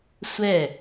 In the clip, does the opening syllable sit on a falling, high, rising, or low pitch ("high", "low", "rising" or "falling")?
falling